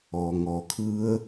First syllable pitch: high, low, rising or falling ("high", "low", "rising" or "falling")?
low